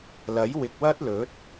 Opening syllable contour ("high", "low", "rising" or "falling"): rising